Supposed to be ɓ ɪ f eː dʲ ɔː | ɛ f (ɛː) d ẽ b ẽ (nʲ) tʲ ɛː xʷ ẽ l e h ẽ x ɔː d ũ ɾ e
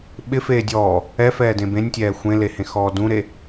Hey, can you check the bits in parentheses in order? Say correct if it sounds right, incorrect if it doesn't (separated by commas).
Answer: correct, correct